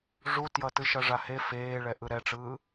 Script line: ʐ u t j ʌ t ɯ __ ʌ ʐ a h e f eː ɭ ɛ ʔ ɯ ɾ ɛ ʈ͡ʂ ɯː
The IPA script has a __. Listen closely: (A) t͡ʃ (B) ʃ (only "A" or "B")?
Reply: B